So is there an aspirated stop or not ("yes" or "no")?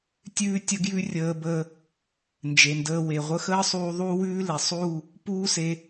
no